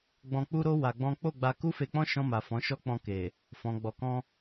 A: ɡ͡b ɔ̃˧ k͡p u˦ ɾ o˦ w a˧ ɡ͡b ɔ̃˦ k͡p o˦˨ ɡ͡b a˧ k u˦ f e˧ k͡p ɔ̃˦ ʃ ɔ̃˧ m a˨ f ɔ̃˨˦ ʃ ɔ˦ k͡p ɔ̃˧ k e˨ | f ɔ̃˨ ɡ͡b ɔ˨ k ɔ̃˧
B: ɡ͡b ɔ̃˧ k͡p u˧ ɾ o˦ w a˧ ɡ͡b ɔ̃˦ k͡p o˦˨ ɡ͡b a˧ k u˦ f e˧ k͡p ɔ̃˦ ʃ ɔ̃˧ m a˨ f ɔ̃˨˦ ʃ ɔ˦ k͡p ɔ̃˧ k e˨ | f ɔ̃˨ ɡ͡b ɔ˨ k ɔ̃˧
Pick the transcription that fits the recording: A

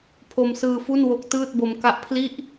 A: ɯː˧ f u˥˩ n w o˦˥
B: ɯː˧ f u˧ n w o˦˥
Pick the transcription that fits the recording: A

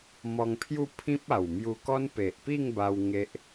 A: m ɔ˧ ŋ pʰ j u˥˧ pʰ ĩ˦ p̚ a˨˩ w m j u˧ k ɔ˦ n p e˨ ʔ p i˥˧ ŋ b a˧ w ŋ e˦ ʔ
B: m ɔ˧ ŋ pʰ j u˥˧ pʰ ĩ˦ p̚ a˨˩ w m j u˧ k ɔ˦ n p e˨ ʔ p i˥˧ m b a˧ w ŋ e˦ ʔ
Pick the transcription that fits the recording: A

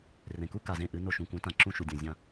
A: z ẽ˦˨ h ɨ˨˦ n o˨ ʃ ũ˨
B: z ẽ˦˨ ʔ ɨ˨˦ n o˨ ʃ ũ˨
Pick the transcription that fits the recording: B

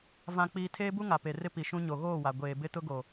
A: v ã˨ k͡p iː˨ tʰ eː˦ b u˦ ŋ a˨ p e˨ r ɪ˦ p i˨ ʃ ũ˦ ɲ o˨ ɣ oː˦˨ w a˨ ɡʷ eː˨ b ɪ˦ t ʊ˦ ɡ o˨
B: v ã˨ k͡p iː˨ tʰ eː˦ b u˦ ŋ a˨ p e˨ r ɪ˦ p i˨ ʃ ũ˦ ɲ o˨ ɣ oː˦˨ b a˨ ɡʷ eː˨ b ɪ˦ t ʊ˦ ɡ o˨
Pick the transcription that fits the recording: A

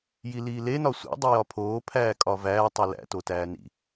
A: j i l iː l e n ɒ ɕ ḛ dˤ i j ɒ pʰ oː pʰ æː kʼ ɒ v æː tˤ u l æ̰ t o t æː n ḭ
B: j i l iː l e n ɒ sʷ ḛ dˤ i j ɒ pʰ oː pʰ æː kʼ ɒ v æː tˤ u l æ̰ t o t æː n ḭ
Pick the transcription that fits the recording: B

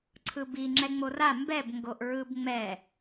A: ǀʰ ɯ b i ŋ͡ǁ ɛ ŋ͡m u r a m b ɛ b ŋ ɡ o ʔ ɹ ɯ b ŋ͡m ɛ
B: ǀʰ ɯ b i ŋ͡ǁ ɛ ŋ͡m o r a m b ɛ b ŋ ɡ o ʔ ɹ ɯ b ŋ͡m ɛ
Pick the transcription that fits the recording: B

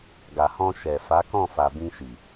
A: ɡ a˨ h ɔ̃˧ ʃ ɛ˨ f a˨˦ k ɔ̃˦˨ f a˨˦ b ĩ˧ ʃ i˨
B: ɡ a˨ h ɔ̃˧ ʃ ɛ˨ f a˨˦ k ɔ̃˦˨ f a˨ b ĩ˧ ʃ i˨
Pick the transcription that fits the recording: B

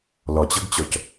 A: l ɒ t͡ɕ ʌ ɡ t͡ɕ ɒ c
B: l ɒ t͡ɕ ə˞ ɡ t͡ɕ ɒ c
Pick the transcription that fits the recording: A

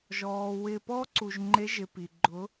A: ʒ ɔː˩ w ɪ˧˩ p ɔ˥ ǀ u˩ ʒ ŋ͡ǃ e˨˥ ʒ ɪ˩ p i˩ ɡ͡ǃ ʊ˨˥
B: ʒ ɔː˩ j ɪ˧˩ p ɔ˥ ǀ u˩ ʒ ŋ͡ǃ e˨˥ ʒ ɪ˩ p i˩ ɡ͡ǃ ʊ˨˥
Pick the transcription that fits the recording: A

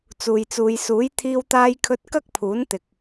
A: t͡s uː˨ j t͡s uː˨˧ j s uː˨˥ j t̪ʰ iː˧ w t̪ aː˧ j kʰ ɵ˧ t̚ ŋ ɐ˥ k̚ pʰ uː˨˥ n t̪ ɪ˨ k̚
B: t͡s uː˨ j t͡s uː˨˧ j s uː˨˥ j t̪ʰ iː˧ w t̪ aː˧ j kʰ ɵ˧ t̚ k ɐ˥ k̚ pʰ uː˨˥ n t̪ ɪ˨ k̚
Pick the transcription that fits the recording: B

